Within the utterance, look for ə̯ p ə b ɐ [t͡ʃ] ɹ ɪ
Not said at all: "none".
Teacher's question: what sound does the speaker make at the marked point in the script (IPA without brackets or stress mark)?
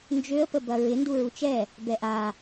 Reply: none